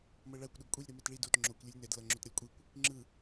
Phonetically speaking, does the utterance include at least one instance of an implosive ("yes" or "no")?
yes